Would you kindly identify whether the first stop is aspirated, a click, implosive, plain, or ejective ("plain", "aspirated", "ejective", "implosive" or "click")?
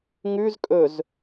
ejective